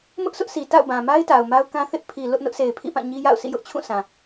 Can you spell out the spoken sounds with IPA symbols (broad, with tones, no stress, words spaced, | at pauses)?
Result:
mʊ˦ʔsʊ˦ʔsʰi˨ ta̰˦˨ʊ̯bã˨ma˦ɪ̯ ta˨ʊ̯ma˦ʊ̯kã˦ θɪ˦ʔ pʰi˨ lʊ˦ʔ nʊ˦ʔsʰe˨ɪ̯pʰḭ˦˨pã˦˨ ɲi˦ja̰˦˨ʊ̯sḭ˦˨ jʊ˦ʔ t͡ɕʰũ˦˨sã˨